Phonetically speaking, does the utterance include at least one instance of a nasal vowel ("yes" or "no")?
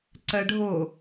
no